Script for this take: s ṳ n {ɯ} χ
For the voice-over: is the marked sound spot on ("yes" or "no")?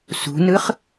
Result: yes